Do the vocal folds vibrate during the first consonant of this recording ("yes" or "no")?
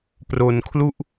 no